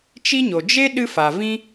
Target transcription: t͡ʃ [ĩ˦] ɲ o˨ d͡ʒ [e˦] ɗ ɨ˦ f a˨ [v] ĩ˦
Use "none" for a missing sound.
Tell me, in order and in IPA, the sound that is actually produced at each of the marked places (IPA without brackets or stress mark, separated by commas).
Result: i˦, e˦, v